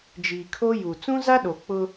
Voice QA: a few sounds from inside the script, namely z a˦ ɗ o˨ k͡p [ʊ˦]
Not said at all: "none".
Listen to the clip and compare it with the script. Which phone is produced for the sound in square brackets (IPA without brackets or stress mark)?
ʊ˦